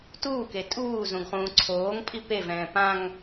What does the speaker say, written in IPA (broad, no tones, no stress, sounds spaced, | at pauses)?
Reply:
t uː k e tʼ uː z ũ ɡ χ ũː ǀʰ oː ŋ pʼ i p e v ɛ̃ː p ã ŋ